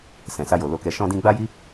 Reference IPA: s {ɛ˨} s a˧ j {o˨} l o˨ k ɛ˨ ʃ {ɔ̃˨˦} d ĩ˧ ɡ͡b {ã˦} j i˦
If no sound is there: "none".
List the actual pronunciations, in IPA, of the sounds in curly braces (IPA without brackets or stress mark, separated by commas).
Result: ɛ̃˨, o˨, ɔ̃˧, a˦